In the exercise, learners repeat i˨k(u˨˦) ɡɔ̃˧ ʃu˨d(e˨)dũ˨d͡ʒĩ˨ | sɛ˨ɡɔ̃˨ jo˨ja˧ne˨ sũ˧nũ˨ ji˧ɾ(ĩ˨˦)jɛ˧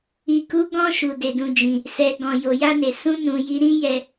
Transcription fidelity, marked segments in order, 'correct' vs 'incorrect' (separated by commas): correct, correct, incorrect